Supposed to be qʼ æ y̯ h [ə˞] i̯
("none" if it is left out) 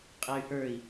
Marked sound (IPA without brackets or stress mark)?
ə˞